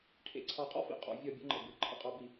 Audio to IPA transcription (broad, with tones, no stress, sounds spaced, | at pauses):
ʈʰ ḛ˧˩ ǀʰ ɑ˧˩ qʼ ɔ̰˥ f ḭ˧˩ qʼ ɔ̰˧ vʲ ɔ˧˩ bʲ ə̰˧ ŋ͡ǃ ə̰˧˩ b ɨ˩˧ ǃʰ ə̰˥˧ qʼ ɑ˧ b i˧˩